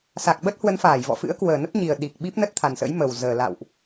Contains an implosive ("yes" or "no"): yes